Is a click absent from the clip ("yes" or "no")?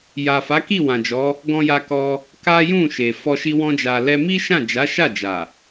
yes